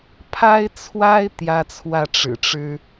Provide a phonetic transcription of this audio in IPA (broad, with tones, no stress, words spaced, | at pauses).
pʰa˥ɪ̯t͡sʰwa˥ɪ̯ t̪jä˥t͡sʰwä˥˩ ʈ͡ʂɻ̩˨˩ʈ͡ʂɻ̩˥